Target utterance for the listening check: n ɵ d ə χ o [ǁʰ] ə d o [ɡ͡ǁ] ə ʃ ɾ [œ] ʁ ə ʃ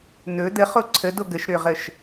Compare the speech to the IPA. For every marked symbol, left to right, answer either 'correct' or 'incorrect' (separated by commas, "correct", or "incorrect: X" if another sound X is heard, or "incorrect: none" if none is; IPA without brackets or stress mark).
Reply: incorrect: ǀʰ, incorrect: ɡ, incorrect: ø